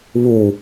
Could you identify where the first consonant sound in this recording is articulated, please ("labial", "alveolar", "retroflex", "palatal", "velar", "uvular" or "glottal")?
labial